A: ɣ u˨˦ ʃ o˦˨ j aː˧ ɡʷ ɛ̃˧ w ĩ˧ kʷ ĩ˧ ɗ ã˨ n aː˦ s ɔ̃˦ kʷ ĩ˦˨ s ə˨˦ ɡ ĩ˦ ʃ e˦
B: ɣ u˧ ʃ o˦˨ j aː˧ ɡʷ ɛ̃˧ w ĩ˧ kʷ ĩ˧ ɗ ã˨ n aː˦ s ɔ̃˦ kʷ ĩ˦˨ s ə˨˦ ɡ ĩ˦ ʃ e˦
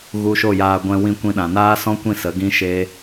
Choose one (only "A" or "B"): B